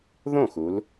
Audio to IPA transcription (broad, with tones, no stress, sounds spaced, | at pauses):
ð õ˥˩ x u˩˧ l